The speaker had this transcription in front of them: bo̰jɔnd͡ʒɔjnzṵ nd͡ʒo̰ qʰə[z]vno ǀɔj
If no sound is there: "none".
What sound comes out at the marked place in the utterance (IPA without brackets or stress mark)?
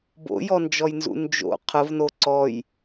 none